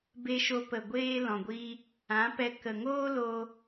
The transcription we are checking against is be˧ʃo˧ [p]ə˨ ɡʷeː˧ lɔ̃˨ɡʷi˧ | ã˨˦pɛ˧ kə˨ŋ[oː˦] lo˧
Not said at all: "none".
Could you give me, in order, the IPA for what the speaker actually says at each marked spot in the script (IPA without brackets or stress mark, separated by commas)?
p, oː˦